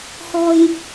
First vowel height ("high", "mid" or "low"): mid